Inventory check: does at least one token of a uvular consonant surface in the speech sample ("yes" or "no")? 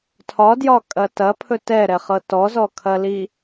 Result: yes